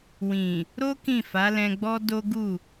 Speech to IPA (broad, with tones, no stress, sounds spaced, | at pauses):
w ĩ˨ | ɾ o˦ k ĩ˦˨ f a˨˦ l ɛ̃˧ ɡ͡b ɔ˦ d o˦ ɡ u˦˨